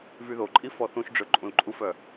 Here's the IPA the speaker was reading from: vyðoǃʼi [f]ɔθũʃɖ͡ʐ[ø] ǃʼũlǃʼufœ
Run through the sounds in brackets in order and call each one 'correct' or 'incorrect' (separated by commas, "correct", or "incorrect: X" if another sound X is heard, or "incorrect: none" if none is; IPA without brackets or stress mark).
correct, correct